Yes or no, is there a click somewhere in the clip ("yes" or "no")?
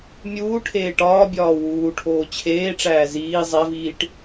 no